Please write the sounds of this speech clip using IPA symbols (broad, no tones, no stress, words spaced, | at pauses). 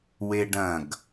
weɖɐ̃ɡ